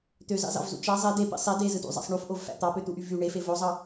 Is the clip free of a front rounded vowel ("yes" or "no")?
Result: no